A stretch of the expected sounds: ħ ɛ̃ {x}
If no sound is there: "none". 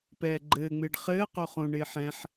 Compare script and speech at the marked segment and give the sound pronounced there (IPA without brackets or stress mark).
ħ